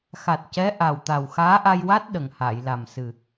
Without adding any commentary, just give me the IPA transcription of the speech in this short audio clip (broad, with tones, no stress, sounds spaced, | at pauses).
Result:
x a˨˩ t̚ c ɛ˧˥ ʔ a˨˩ w t̪ a˨˩ w x aː˧˥ ʔ a˧ j w a˦˥ t̚ ɗ ə˨˩ ŋ h aː˨˩˨ j l a˨˩ m s ɨ˨˩